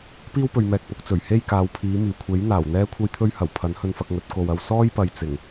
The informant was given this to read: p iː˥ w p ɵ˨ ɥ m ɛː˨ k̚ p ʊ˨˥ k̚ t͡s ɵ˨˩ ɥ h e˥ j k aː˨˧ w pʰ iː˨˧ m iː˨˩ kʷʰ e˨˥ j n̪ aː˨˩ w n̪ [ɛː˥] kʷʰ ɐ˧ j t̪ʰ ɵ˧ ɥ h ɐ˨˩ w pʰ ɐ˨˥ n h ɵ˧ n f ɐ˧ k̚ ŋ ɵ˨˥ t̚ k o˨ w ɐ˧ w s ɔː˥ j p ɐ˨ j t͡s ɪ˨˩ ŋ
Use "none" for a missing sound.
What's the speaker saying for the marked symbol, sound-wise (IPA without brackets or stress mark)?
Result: ɛː˥